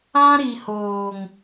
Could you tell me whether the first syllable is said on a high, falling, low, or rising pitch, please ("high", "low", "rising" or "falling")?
high